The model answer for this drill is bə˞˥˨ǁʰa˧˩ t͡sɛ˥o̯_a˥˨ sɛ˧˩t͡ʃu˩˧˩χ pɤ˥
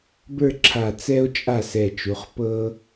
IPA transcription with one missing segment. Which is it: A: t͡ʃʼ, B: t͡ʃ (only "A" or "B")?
A